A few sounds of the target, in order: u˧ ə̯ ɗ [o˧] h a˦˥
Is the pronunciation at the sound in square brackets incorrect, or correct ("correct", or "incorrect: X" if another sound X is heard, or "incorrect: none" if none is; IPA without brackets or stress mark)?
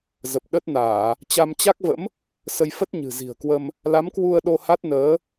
correct